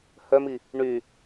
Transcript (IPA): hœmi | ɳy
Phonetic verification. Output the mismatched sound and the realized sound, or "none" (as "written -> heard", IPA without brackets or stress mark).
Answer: none